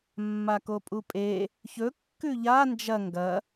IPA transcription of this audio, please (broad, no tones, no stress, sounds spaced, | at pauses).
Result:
mː a k o pʼ u pʼ e | ç ɵ kː ʉ ʎ a n d͡ʒ ɐ ŋ ɡ ɐ